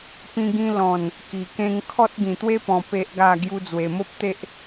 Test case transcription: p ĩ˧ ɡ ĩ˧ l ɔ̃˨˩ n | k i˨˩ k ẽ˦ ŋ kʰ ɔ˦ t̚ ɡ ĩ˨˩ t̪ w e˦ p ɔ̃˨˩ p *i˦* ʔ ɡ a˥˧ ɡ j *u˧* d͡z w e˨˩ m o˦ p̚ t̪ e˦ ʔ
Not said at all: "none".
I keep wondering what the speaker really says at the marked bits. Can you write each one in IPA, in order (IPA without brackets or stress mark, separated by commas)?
e˦, u˧